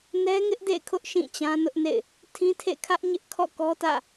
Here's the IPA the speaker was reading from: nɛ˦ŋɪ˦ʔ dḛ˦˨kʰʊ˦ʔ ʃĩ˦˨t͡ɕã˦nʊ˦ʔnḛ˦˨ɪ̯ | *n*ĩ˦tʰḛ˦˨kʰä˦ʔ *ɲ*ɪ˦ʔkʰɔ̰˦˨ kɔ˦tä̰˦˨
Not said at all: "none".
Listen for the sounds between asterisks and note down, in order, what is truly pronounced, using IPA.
tʰ, ɲ

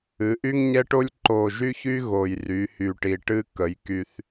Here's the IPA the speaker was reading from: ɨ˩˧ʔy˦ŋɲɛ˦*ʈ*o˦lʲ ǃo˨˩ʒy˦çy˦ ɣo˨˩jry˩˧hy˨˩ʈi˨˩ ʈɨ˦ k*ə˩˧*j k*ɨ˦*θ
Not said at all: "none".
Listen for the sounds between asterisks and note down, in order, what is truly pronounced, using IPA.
ʈ, ə˩˧, y˦

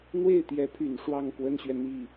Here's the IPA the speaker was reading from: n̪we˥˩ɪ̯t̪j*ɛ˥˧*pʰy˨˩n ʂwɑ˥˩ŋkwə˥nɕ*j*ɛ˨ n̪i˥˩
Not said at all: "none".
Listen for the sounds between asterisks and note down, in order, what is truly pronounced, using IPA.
ɛ˧˥, ɥ

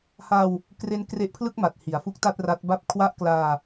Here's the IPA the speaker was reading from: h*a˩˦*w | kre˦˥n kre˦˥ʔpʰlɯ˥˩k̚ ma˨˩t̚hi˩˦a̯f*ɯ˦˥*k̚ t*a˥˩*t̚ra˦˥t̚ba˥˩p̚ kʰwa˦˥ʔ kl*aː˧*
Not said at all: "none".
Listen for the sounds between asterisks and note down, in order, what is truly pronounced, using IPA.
a˧, u˦˥, a˥˩, aː˧

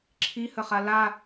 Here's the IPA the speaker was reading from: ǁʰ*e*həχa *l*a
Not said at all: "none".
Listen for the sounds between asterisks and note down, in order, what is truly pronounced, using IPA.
i, l

